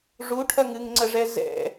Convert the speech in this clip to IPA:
ʐuʈʰɐŋ ɨŋŋ͡ǀəʐɛ zɛ̰

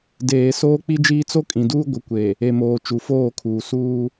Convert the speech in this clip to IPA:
deː˨ soː˦k͡pi˦d͡ʒiː˦ t͡so˦kʼĩ˨duː˦ ɡʷɪ˨kʷe˨ | e˨moː˨ t͡ʃu˨foː˦˨kʰuː˨ suː˦

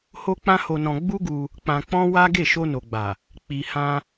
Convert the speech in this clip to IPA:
ho˦k͡pã˦ho˧nɔ̃˧ ɡ͡bu˦ɡu˧ | k͡pã˧k͡pɔ̃˦wa˦ ɡe˦˨ʃo˧no˨ɡ͡ba˨ | k͡pi˨hã˧

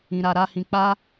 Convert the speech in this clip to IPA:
ĩ˧ɾa˧ ɾa˦hĩ˧ k͡pa˦

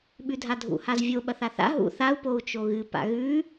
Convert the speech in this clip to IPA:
ɓʉdʱadʱṵ hazvʲo ɓɐθaθa̰ ɦṵ θau̯ pou̯t͡ʃoɣɨ pa̰ɣʉ

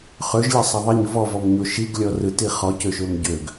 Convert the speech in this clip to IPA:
χøʒlʲɐsˤɐ ðˤiɲ vɔvɔmɲo ʃiɡlʲɔ rɯti χɔcøʃøm ɟøɡ

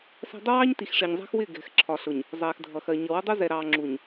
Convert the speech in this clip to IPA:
sæ̤˦ dˤʊ˦wɑː˦ɲ ti˨xʂɪː˨ɲzˤæ̤˦xwɪː˦˨ ɡɛ̤˨x ǁʰɒ˨ ɬʊ˨ɲ | zˤɛː˨xdʱʌ˨xɜ˨ ɲʌ˨ wə˦dˤu˦zɛ˨ ɾɑː˨ ŋ͡ǁu˨ɲ

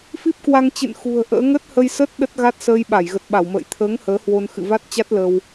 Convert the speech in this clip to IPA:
fi˦˥p̚kwa˧ŋt͡ɕɨ̰˧˨n xṳ˨˩ə̯ʔə̰ː˧˥ ŋə˦˥t̚hə˧jsə˦˥t̚ ɗə˦˥t̚ɣa˦˥t̚səː˧j ɓa˧˩jɣə˨˩t̚ ɓa˧˩wmə̰ː˧˨j t̪ʰəː˨˦ŋ həː˨˦hwo˧n xɨ̰˧˨va˦˥t̚t͡ɕa˦˥t̚ lə˧w

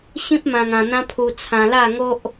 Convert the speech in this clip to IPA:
ɕĩ˦p̚mã˧ŋã˧n̪ã˦ pʰu˧t͡sʰã˧la˥˧ŋo˦ʔ

